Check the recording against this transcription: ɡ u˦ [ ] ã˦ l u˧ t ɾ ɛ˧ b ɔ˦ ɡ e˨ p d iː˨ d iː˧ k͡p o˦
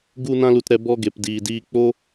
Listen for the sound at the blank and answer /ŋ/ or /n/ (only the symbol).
n